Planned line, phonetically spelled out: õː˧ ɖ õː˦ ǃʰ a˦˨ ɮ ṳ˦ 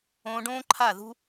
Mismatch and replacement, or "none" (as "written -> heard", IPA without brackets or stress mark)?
ɮ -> ð